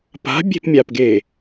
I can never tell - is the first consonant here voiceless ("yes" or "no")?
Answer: yes